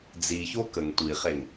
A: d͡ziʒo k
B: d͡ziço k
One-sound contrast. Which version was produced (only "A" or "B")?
B